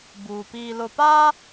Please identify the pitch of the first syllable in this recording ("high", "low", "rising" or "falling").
low